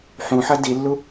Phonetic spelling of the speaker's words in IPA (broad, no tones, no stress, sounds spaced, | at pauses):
ħ ũ ħ ɐ d i lː u